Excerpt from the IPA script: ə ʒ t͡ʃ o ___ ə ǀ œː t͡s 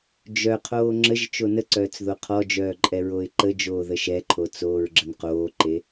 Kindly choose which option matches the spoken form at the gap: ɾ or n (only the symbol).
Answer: n